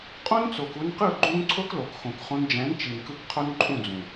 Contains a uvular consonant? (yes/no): yes